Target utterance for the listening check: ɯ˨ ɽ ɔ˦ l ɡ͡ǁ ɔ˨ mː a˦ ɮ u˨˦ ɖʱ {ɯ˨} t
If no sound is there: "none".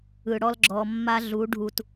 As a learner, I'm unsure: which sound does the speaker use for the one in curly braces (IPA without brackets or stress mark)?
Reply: u˨